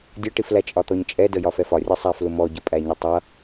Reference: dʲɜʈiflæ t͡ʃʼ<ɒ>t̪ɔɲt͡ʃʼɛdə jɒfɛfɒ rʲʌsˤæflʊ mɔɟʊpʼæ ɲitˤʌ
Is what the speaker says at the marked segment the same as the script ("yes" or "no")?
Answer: yes